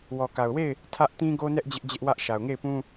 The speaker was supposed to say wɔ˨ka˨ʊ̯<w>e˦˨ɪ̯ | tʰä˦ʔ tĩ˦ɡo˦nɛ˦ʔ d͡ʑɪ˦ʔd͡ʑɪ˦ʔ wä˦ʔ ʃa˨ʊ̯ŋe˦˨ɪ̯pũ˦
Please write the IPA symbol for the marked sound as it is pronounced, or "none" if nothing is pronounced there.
w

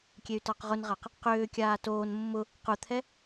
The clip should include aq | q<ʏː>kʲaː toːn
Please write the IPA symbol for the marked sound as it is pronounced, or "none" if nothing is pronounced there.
ʏː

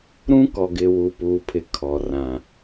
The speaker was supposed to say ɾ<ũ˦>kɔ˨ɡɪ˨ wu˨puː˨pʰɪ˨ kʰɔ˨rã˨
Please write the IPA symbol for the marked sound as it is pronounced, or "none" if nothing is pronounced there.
ũ˦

